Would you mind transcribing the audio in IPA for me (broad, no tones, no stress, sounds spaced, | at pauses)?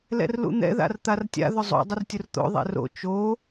l ɛ̰ r l ṵ n̪ ɛ̰ ð a̰ r t̪ a r tʲ a̰ ð ʊ zˤ o̰ dˤ ʊ r tʲ ʊ r t̪ o̰ ðˤ ɛ̰ r o̰ t͡ʃ o